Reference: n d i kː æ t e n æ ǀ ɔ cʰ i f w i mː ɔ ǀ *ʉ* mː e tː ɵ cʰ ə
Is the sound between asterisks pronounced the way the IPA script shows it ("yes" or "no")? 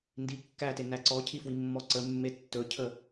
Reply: no